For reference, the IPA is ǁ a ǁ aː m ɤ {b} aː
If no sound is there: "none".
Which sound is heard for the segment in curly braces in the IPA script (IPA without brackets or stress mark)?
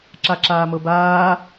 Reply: b